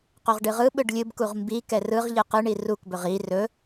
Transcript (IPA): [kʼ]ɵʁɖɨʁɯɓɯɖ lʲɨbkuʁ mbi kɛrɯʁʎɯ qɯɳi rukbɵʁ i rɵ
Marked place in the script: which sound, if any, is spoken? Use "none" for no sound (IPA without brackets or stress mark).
q